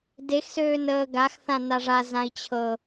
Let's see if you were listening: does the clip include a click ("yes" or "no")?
no